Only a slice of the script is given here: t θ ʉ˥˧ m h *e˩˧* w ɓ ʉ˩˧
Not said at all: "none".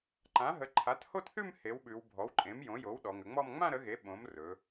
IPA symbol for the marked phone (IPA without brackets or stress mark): e˩˥